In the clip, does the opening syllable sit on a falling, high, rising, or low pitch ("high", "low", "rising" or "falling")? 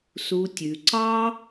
low